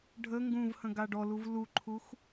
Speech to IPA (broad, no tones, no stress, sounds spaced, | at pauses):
ɖʱ ə ŋ ɡ ũ v h ə̃ ɡ a ɖ ɔ l u v l u ǃʰ u x